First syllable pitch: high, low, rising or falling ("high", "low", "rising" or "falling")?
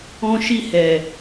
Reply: high